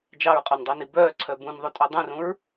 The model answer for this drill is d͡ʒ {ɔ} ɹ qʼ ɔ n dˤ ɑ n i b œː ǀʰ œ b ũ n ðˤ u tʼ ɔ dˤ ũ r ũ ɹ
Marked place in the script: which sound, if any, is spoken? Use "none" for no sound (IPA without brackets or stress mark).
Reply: ɑ